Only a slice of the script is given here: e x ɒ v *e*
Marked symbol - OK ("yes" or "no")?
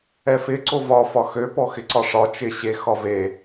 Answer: yes